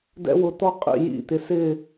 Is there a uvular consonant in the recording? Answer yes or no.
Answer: yes